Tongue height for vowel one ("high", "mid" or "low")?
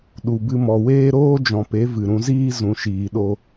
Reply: high